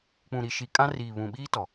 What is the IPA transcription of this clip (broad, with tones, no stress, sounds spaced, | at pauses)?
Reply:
k͡p ũ˨ ɾ i˨ ʃ i˨ kʼ ã˦ r iː˨ β ũ˨ ɓ iː˦ t ɔ˨